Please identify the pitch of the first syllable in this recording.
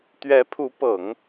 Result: rising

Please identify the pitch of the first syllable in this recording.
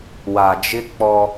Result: low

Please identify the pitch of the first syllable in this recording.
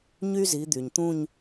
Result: high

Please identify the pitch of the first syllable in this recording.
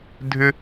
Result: high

